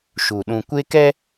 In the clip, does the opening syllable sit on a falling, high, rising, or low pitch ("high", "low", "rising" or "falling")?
low